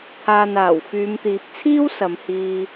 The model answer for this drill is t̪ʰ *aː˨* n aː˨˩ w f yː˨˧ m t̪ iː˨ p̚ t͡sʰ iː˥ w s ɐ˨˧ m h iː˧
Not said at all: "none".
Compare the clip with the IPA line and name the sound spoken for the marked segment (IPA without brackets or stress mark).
aː˨